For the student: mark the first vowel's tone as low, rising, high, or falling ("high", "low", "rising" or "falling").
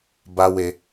high